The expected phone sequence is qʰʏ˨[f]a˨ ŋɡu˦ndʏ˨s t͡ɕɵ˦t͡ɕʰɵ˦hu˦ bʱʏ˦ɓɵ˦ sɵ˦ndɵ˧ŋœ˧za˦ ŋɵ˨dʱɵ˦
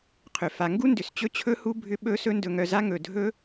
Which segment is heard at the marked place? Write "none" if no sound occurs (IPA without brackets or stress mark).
f